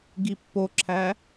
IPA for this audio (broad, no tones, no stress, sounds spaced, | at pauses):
ɡ i pː o ǁʰ æ